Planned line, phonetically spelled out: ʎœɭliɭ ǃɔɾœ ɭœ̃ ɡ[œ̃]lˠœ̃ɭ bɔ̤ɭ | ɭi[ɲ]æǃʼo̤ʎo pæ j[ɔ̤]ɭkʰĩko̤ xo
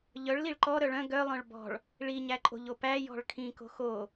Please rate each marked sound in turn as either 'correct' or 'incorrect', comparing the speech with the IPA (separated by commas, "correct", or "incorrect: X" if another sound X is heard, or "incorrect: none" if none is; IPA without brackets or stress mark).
incorrect: œ, correct, correct